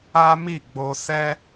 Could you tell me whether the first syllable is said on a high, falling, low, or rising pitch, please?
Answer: high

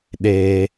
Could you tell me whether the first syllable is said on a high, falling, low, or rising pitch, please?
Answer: high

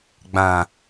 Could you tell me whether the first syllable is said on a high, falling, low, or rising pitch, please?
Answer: low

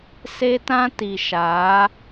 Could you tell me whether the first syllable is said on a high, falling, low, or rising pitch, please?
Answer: high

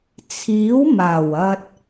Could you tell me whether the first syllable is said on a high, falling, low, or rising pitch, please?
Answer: rising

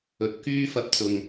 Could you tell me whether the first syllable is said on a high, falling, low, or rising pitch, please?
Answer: low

